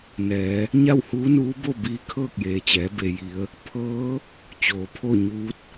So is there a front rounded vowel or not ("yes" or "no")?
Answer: no